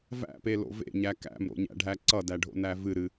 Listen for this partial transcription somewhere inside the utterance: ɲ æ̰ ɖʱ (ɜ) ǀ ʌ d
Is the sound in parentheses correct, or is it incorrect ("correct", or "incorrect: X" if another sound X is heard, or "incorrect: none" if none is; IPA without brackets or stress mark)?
incorrect: æ